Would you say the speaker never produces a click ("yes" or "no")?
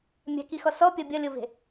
yes